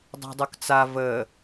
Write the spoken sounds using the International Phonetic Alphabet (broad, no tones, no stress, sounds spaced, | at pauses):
dˤ a̤ dˤ o k t͡s a v ə